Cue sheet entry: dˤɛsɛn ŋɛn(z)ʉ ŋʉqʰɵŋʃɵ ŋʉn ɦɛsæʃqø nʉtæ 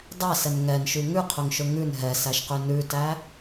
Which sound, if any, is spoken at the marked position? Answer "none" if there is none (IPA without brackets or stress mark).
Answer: ʃ